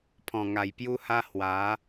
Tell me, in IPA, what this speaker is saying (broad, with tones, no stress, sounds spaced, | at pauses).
pʰ ɔ̃˨˩ ŋ a˨˩ j p j u˧ h a˧ h w a˨˦